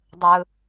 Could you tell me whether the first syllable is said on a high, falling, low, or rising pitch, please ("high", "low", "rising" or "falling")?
low